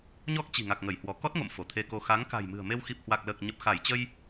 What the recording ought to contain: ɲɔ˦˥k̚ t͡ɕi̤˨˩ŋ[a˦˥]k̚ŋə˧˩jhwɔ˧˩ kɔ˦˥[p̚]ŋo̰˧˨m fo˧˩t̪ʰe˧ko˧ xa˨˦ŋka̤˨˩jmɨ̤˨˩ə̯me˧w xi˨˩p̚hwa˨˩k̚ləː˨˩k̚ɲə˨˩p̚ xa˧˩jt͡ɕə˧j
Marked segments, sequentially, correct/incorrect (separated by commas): incorrect, incorrect